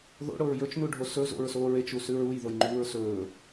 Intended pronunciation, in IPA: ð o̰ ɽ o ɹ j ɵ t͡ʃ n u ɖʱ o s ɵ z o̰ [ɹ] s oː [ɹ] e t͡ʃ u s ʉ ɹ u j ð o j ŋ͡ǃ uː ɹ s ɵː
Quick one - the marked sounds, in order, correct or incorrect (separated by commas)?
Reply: correct, correct